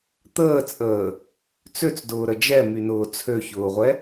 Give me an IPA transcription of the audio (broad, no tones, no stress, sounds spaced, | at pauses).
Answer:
t̪ əː t͡sʼ əː | t͡s ø t͡s d ʊː ɾ ə d͡ʒ ɛ m y n ʊː t͡sʰ ø ç ʊː ʁʷ ɛ